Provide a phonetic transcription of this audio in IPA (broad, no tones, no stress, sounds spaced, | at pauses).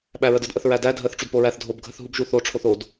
ɓ æ ɹ ə d ə d ʔ ə θ ɹ æ d æ dʱ ə θ ʈ͡ʂ u d p o ɹ æ θ dʱ o b ɡʱ ə θ ɦ u b ʒ u θ o ʈ͡ʂʰ o θ o d